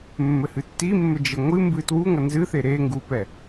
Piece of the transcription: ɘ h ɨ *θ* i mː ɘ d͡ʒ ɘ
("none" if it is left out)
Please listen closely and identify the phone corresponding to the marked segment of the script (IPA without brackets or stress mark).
tː